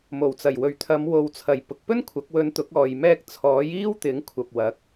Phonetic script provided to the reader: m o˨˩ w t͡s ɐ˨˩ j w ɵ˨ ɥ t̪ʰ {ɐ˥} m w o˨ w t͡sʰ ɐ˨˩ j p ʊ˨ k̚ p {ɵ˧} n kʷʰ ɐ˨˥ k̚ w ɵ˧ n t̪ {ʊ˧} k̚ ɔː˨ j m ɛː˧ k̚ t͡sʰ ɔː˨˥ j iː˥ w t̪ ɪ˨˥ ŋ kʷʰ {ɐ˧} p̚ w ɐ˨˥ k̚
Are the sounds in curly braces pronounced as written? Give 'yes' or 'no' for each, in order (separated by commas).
no, no, no, no